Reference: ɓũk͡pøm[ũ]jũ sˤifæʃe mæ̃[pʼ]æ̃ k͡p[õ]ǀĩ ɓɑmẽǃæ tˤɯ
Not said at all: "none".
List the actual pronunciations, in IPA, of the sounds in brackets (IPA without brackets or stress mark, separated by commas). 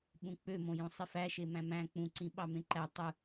õ, m, ũ